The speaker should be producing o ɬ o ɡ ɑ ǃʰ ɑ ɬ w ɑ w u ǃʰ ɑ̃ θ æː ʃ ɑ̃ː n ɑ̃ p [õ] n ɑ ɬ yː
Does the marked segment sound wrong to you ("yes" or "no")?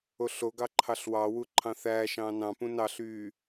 yes